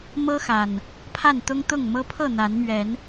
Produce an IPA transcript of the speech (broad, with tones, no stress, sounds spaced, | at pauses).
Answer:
m ɤ˦ x a˨˩ n | pʰ a˥˨ n t̪ ʊ˦ ŋ t̪ ʊ˥˨ ŋ m ɤ˦ pʰ ɤ˥˨ n̪ a˨˦ n m ɥ ɛ˨˦ n